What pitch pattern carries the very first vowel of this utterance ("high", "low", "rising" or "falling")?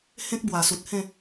high